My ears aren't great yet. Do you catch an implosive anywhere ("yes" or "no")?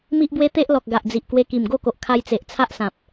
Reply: no